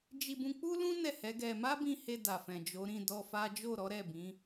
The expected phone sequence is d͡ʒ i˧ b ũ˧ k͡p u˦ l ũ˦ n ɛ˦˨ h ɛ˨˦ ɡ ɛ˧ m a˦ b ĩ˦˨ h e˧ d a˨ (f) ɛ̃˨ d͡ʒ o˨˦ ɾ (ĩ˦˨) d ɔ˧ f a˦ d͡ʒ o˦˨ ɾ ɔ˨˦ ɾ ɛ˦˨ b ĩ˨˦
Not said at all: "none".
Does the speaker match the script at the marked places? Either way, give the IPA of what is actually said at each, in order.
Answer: f, ĩ˦˨

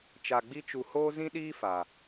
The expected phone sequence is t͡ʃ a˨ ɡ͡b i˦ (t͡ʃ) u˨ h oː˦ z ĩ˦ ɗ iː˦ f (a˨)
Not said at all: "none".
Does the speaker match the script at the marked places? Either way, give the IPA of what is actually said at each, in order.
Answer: t͡ʃ, a˨

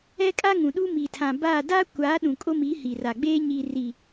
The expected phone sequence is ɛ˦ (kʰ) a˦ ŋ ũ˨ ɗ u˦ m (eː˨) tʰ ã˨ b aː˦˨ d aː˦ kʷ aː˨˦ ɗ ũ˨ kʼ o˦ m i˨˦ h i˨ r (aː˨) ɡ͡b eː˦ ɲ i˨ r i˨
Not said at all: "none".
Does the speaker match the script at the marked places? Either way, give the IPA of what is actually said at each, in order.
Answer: kʼ, iː˨, a˨

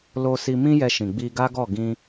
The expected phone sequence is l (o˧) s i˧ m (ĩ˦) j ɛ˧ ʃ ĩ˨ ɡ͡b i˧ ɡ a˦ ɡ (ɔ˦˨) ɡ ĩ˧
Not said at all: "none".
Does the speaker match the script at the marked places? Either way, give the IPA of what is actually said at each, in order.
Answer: o˧, ĩ˦, ɔ˦˨

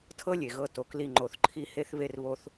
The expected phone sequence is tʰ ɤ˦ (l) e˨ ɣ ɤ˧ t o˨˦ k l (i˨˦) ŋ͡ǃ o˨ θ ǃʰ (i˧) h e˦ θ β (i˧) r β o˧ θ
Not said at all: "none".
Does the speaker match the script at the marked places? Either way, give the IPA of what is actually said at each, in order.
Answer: lʲ, i˧, i˧, e˧

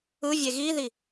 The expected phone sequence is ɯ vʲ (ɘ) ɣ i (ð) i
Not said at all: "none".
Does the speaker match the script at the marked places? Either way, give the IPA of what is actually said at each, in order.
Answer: e, ð

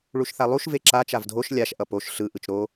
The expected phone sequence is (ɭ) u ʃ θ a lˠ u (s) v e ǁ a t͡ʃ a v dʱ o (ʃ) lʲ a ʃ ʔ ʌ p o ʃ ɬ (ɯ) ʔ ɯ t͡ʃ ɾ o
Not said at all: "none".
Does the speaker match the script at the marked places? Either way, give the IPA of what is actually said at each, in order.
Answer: ɭ, ʃ, ʃ, ɯ

